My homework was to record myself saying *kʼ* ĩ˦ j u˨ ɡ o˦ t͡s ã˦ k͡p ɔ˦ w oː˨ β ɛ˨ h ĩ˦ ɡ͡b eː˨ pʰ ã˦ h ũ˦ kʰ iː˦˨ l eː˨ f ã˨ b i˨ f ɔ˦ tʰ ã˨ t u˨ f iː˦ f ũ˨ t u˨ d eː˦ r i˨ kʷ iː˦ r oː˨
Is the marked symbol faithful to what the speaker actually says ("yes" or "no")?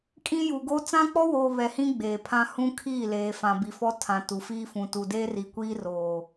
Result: yes